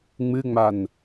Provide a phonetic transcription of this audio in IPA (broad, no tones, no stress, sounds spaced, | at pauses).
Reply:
ŋ͡m ɨ ŋ͡m a n